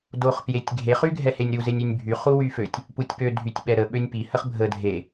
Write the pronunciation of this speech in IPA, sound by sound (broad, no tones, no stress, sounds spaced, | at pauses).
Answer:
d o χ p j e tʲ ɡʱ e χ y ɡʱ ɛ h e nʲ ɾ u z e nʲ y nʲ bʱ y χ u w y f ø tʲ | p u tʲ p ø dʱ y tʲ ɓ ɛ ɾ ə ɓ ø nʲ p i h ə χ bʱ ə dʱ e